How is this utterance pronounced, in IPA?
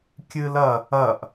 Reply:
kʲɨlɐ | ɐʔ

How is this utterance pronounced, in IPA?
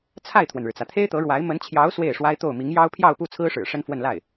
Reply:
t͡sʰa˥˩ɪ̯t̪ʰwə˩nɻɻ̩˩t͡sä˩ t̪ʰe˥ɪ̯t̪ɤ˧˥ɻwa˧˥ɪ̯ mə˧˥nt͡ɕʰjɑ˧˥ʊ̯ swe˥˩ɪ̯ʂwa˥ɪ̯t̪o˥˩ʊ̯ mi˧˥ŋjɑ˥ʊ̯ pʰjɑ˥˧ʊ̯pu˥˩t͡sʰɹ̩˥ʂɻ̩˨˩ ʂə˥nfwə˥˧n la˥˩ɪ̯

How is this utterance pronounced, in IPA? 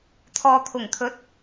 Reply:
t̪ʰɔː˨t̪ʰʊ˨˩ŋt̪ʰɵ˨˥t̚

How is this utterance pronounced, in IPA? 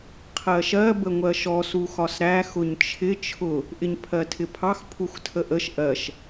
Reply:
qʰɜʃɜ bəŋʷɜʃɔ suxɒsɾæ xʊɲt͡ʃʰɪ t͡ʃʰʊ | ʔɪɲpʰɜtʰɪpʰɑx pʰuxtʰəʔəʃ ʔɜʃ

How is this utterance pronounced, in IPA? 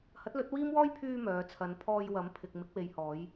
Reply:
hɐ˨˥t̚lɵ˨˥t̚ wiː˥m wɔː˥jpʰyː˧ mœː˨˧ t͡sʰɐ˨˧npʰɔː˧jwɐ˨˥m pʰɪ˨k̚ mɪ˨˥k̚we˨j hɔː˨˧j

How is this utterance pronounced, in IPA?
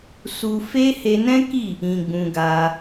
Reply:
su˧fe˦ he˧nɛ̃˦ki˦˨ | ĩ˧ɡ͡bũ˧ɡa˧

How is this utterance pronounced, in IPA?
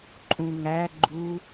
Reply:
ǃʼũŋæ ɡ͡ǃu

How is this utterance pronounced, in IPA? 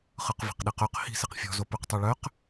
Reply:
χɯqvi̤qɗiqœq hi̤ siqfʲɔ̤ zopyqtˤyɭœq

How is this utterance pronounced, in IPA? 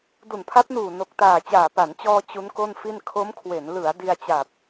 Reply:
du˨˩npʰa˦˥p̚nuː˨˩ no˨˩k̚taː˨˩t͡ɕaː˨˩ pa˩˦nt͡ɕɔː˧ t͡ɕu˦˥nko˥˩nfi˥˩n kʰo˦˥mkʰwe˩˦n lɯ˩˦a̯ di˧a̯t͡ɕa˨˩p̚

